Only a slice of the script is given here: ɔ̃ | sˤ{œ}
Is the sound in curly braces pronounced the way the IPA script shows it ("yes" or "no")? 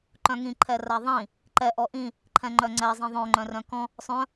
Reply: no